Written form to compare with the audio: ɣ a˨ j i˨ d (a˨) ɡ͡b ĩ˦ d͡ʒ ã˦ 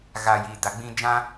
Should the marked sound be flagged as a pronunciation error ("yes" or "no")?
no